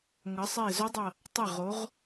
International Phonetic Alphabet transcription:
ŋ ʌ˩˧ sˤ e˧˩ z ɵ˧˥ dˤ ʌ˧˩ | tˤ ə˧˩ ʁ o˩˧ ʁ

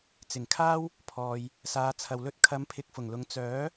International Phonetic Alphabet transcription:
t͡s ɪ˨˩ ŋ kʰ aː˥ w | pʰ ɔː˨ j | s aː˨˧ t͡sʰ ɐ˨ w l ɵ˥ t̚ kʰ ɐ˨˧ m pʰ ɪ˨ k̚ f ʊ˨˩ ŋ l ʊ˨˧ ŋ t͡s œː˨˥

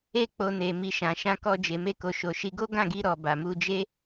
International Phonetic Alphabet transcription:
e˧ k͡p o˨ n e˨ m i˨ ʃ ã˨ ʃ ã˧ k ɔ˧ d͡ʒ e˨ m e˧ k o˨ ʃ o˨ ʃ i˧ ɡ o˦ ɡ ã˦˨ ɡ i˧ ɾ ɔ˨ b a˨ m u˧ d͡ʒ e˦

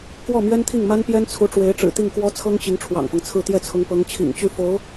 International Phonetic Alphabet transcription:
k w ɔ˥˩ m ɥ ɛ˥ n t̪ʰ i˥˩ ŋ m a˥ n p j ɛ˥ n t͡sʰ u˧˥ ʈ͡ʂ w e˧˥ ɪ̯ ʈ͡ʂ ɻ̩˨˩ t̪ i˥˩ ŋ k w ɔ˥ t͡sʰ ɤ˥ ŋ t͡ɕ i˧˥ ŋ ʈ͡ʂʰ w ɑ̰˨˩ ŋ f ɤ˦ ŋ t͡sʰ ɹ̩˥˧ t̪ j ɛ˥˩ t͡sʰ ʊ˧˥ ŋ p ɤ˧˥ ŋ t͡ɕʰ ḭ˨˩ ŋ t͡ɕ y˥˩ f o˧˥ ʊ̯

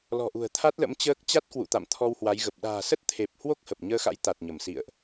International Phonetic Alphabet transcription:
l ɔ̤˨˩ ʔ ṳ˨˩ ə̯ t̪ʰ a˦˥ t̚ l ə̰˧˥ m t͡ɕ əː˦˥ k̚ t͡ɕ a˦˥ t̚ k w ṵ˧˨ t̪ a̰˧˨ m t̪ʰ ɔ˧ w h w a˨˦ j ɣ ə˨˩ p̚ ɗ a̤ː˨˩ s ə˦˥ t̚ t̪ʰ e˨˩ p̚ h w o˦˥ k̚ h ə˨˩ p̚ ɲ əː˧ x a̰˧˥ j t̪ a˨˩ t̚ ɲ ə˧˩ m s ḭ˧˨ ə̯ ʔ

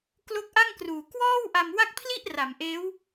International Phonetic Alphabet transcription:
k l o˦˥ k̚ ʔ a˥˩ ŋ k r uː˨˩ k w ɔː˥˩ w ʔ a˧ m w a˥˩ k̚ pʰ l i˥˩ ʔ r a˩˦ m ʔ eː˦˥ w

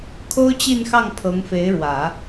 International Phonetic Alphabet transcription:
kʰ o˥ ʊ̯ t͡ɕ i˥˧ n x ɑ˥˩ ŋ pʰ ɤ˧˥ ŋ f e˧˥ ɪ̯ ɻ w ä˨˩˦

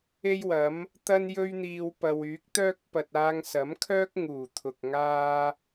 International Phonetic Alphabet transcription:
e˥ j w ɐ˨˥ m | t̪ ɐ˥ n j ɵ˥ ɥ n̪ iː˧ w p ɐ˨ w yː˨˥ k̚ t̪ œː˥ k̚ p ɐ˨ t̚ aː˧ ŋ s ɐ˨˥ m kʰ œː˥ k̚ ŋ uː˨˩ t̪ʰ ʊ˨ k̚ ŋ aː˥

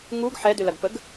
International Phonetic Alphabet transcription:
ŋ u ɡ ħ ɛ d ʏ l ɐ ɡ p ə ɡ

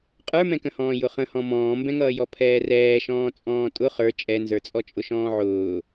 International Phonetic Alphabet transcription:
qʼ ə˞ m ɛ̃ k ə̃ h ɔ̃ː j ʊ χ ə̃ h ɔ̃ m ɔ̃ː m b ɛ̃ ŋ ʌː j ɔ pʰ ɛː r ɛː ʃ ɔ̃ː t͡sʼ ɔ̃ː tʼ ʊ χ ə˞ t͡ʃʼ ɛ n z ə˞ t͡sʼ ɔ t͡ʃʼ ʊ ʃ ɔ̃ː ʕ ʊː

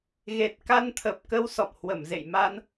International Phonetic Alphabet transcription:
ɣ e˨˩ t̚ k a˧ n t̪ʰ ə˨˩ p̚ k ə˧ w s ɔ̰˧˨ m h w ə˧˩ m z ḛ˧˨ j m a˧ n

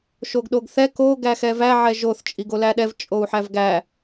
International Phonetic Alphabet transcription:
ʃ o ɡ ɗ o ɡ θ ɛ k o ɡ æ x ɛ v æ ʕ ɛ ʒ o θ t͡ʃʼ i ɡ o l æ ɗ ɛ v t͡ʃʼ o u̯ ħ æ v ɡ æ

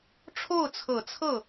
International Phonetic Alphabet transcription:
ʈ͡ʂʰ o˥˩ ʊ̯ t͡sʰ ɤ˨˩ t͡sʰ ɤ˥˩

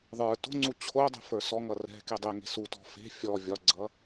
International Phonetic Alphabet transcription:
ðˤ ə˞ t o̤ ŋ͡ǀ u t͡ɕʰ o dˤ ɛ̤ f ə˞ s ɔ ŋ ʌ r ɛ̤ k e dˤ ɛ ŋ e̤ s u t ɔ̤ f e̤ fʲ ɔ vʲ ɒ ɡ͡ǀ ʌ

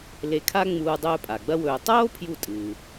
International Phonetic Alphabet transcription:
l e˧ kʰ a˥ ŋ͡m uː˧ dˤ ɵː˧ pʼ a˩ ɡ͡b ɐ˥ w ɵː˧ tˤ oː˥ pʰ j u˧ tʼ ɨ˩

